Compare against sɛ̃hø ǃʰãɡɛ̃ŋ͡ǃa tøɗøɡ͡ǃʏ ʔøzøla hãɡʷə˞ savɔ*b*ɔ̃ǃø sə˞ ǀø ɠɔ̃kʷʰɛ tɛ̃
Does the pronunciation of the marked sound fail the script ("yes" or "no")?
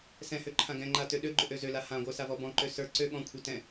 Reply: no